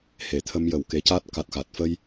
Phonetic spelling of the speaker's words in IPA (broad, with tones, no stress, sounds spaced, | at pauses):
h e˨˩ t̪ʰ ə˧ m j ə˨˩ w k e˧˥ c a˦˥ t̚ k a˨˩ t̚ x a˨˩ t̚ f ə˧ j